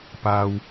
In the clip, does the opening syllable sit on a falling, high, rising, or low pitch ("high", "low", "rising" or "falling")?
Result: low